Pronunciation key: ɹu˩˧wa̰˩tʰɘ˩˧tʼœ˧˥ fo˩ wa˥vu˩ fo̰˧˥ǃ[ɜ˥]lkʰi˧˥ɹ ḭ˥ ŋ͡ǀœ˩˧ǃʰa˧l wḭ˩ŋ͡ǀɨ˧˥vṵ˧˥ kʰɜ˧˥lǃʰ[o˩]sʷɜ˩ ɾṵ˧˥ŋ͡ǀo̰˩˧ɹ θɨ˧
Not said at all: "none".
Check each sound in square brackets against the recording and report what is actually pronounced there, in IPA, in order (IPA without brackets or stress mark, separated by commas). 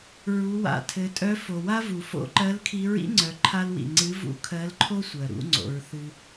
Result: ɜ˧˥, o˥